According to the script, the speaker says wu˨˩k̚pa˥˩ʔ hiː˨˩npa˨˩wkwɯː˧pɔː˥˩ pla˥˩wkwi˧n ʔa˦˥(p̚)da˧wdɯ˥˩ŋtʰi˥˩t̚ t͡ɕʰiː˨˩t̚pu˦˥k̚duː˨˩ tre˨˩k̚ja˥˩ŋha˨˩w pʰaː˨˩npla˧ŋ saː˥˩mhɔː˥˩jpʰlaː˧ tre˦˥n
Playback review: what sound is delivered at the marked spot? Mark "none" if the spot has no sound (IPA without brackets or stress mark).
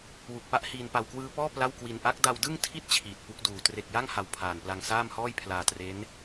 k̚